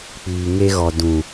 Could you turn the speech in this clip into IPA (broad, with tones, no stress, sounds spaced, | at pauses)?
k͡p iː˨ ŋ e˦ ɣ ɔ˨ d ũ˨